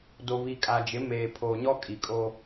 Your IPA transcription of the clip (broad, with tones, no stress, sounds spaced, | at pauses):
d o˨ β i˨ kʼ a˨ d͡ʒ ɪ˨˦ m eː˨ pʰ o˨ ɲ ɔ˦ kʼ i˨ kʼ o˦